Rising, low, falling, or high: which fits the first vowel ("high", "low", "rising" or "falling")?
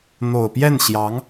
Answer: low